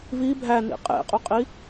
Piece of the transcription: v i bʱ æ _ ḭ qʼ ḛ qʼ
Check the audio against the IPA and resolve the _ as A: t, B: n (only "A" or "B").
B